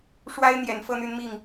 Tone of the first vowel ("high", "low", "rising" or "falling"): high